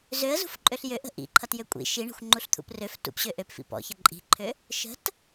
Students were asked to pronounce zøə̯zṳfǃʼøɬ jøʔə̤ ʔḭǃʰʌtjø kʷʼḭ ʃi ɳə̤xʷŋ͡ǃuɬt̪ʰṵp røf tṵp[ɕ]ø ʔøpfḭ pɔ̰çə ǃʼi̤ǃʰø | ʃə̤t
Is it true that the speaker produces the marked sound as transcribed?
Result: yes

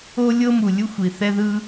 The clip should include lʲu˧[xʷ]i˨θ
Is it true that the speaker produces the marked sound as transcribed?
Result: yes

